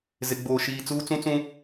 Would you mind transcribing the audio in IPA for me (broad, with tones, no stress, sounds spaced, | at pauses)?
z ɪ˨ ɡ͡b oː˨ ʃ iː˨ t͡s uː˦ t͡s ũ˦ t͡s ũ˦